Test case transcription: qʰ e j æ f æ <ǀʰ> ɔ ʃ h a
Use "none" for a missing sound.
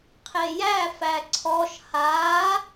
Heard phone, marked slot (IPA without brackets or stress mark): ǀʰ